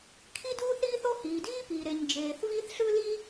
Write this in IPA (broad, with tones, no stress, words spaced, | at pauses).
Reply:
kʰi˥duː˥θɾiː˥θo˥ hiː˩diː˥piː˩ ɾe˩ɲ d͡ʒeː˩θviː˥θ ɬɯ˥liː˥